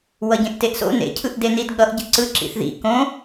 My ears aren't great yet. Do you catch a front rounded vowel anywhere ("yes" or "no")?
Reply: no